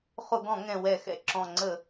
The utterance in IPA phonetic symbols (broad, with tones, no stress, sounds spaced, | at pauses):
χ ʊ˧˩˧ ɡ ɔ̃˧˩˧ ŋ ɛ̃˨˩ w ɛ˧˩˧ x ɛ̰˨˩ ǁ ɔ̃˨˩ ŋ͡ǀ ə˧˩˧